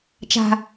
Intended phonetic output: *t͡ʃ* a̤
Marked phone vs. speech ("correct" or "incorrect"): correct